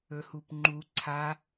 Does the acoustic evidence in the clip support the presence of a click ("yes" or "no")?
yes